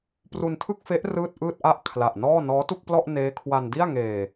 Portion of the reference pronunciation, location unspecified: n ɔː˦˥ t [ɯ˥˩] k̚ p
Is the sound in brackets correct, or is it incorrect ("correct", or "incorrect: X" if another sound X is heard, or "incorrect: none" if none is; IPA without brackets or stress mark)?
incorrect: u˥˩